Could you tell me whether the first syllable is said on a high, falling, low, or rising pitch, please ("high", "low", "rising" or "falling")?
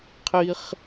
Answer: high